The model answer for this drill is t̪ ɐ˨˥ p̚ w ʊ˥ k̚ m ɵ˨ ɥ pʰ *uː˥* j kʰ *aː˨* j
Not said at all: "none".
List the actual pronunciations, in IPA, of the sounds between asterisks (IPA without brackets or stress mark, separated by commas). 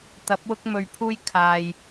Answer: uː˧, aː˨